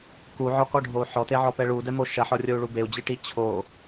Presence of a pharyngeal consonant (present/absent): present